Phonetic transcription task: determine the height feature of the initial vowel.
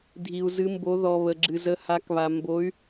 high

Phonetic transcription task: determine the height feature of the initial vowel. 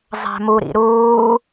low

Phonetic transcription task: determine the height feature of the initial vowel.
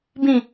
high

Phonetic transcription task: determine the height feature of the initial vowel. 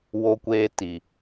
mid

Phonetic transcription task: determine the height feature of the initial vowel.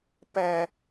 low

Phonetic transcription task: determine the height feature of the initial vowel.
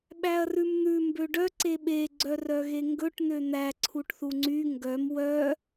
low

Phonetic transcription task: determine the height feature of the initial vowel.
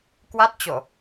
low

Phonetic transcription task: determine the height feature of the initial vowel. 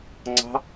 low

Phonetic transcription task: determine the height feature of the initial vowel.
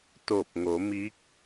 mid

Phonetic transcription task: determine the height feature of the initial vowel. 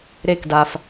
mid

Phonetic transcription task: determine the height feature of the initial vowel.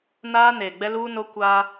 low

